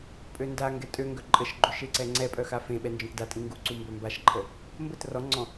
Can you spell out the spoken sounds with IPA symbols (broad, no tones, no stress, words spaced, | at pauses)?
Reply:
pʼøndaŋɡɛ tʼø ŋɡœǃʼəʃɡ͡ǃø ʃeǀɛŋ͡ǀɛpʼœ xafẽɓɛ nd͡ʒɔ̃tdatʼĩ ŋɡuǀu mbœmbaʃǃʰə | mbət rɔŋ͡ǀɔ̃